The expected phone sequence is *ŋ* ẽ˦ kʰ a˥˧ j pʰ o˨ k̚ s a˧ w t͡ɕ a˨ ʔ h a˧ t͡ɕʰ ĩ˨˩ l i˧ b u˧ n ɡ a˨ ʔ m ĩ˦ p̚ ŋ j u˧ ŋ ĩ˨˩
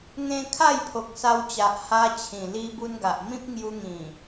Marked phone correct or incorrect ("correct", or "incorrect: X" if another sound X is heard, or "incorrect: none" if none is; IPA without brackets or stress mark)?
correct